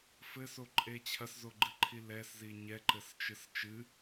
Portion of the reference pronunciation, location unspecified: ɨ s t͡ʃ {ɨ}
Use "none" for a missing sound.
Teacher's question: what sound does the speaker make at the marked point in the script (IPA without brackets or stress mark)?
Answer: ɨ